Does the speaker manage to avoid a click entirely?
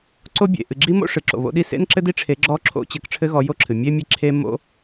no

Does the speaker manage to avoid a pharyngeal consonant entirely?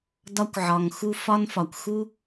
no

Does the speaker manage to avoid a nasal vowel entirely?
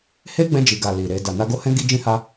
no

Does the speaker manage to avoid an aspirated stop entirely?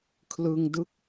no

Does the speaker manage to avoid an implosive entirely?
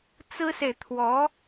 yes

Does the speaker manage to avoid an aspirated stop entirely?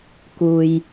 yes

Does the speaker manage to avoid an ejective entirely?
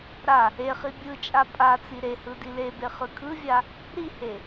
no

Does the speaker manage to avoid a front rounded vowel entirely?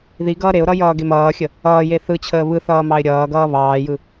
yes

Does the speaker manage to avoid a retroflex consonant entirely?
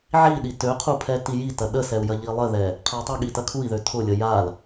yes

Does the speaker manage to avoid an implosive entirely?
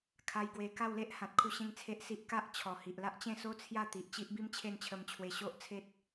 yes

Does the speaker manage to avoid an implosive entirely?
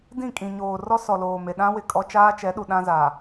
no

